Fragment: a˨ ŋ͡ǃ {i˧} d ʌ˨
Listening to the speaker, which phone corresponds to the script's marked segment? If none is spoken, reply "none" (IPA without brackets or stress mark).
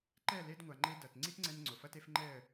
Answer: e˧